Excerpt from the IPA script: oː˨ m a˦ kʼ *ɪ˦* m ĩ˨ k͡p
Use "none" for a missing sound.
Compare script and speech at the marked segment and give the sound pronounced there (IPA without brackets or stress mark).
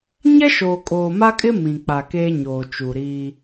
ɪ˦